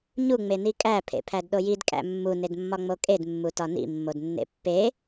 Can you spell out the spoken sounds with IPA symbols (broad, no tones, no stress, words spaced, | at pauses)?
ɲu ŋ͡menikʼæ pʰḛpʰædɗojid kʼæ̰mːu nedmːɒŋ͡mokʼed mːutɒnḭ mːodnːḛpːe